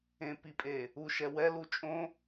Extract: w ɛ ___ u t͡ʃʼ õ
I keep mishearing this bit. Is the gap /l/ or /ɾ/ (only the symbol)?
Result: l